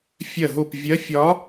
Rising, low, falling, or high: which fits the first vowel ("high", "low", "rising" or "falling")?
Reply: falling